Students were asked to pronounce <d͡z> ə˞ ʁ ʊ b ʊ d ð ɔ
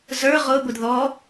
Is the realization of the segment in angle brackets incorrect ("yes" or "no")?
yes